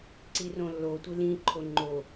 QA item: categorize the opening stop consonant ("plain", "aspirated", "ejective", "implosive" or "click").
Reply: click